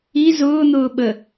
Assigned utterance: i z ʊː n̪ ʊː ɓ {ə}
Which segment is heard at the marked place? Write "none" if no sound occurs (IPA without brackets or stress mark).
ə